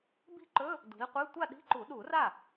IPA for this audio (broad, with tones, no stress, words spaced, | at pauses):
bi̤˥˩ǃɵ˧˥˧ | dṳ˨˦i̯qʷe˧˥˧ tʷa˥˧ɗi̤˧˥˧ǃu˨˩˦ ɗu˨˩˦ra˥˩